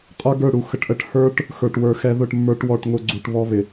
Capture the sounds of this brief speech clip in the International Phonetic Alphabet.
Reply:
qʼə˞˦ɡə˞˦˨ ɽu˨xə˨ʈʔə˧ʈ hə˞˦ʈ | xə˞˨ʈwə˞˨xɛ˧ ðʊ˦˨ʈmːə˞˧ʈ wɔ˨ʈ ŋʊ˨ ɡ͡ǀu˨ʈβɔ˧βɪ˨

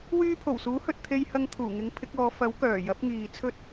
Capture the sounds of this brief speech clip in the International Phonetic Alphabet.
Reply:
wyː˧pʰo˨˩wsuː˨˥hɵ˨t̚ t̪ʰe˧jhɐ˧ŋt̪ʰuː˨˩ŋɪ˨˥ŋ pʰɪ˨˥k̚ɔː˨˧ fɐ˨˥w kœː˨˩jɐ˨˥p̚ ŋiː˨ t͡sʰɵ˥t̚

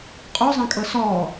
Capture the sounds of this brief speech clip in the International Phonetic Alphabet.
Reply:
qʼozˤãkʼɤ sɔ

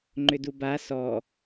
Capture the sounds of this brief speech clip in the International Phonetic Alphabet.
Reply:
ŋ͡ǃʏduba sɔ

